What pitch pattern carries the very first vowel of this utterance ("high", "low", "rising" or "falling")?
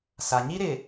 low